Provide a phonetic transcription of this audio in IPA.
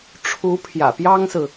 ʈ͡ʂʰ u˧˥ pʰ j ä̰˨˩ p j ɑ˥ ŋ s ɹ̩˨

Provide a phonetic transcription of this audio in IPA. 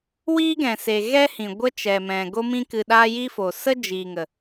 w iː˦ ɡ ɛ̃˨ s e˨ ɣ ɛ˦ h ĩ˨ ɡʷ ə˦ t͡ʃ ɛ˨ m ɛ̃˨ ɡ o˧ m ĩ˧ k ɨ˨ ɗ aː˧ j i˦ f oː˨ s ə˦ d͡ʒ iː˨ ŋ ə˨

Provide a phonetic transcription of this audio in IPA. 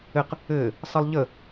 ɘ q | ɘː | sˤ ɘ lˠ ʎ ə

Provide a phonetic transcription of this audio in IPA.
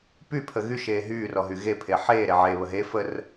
p y pʰ ə ɣ y ʃ eː ɦ yː r ɔ ɦ y ɣ e pʰ e ħ eː ɾ e ʕ eː β ə ɦ e f ə r

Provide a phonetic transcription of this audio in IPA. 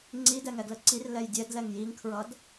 ŋ͡ǀ i d ɛ ŋ ɛ ɡ l ə ǀ i r l ɛ j dʲ ɛ d l ɛ ŋ j i ŋ kʰ ɹ ʌ d

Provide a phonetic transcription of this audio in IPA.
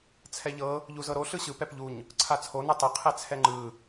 t͡sʰ ɛ ʎ ɤ | ʎ u z ɤ ɾ o ɬ ɯ ɕ ɯ p ɛ p ʎ u ɲ | ǀʰ a t͡sʰ o n ɯ tˤ ɯ qʰ ɛ t͡sʰ ɛ ŋ͡ǃ ɯ

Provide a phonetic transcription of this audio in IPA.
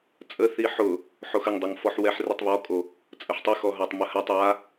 t͡sʼ ə θ i ħ ʊ | ħ o x ə ŋ dˤ ə ŋ f ɔ ħ w ɛ ħ r i tˤ β ɔ kʼ o | t͡sʼ ə ħ tˤ ə x ɔ ɦ a tˤ m ə h a tˤ a

